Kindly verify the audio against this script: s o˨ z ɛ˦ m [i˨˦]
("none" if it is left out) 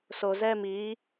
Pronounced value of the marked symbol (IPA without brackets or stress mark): i˨˦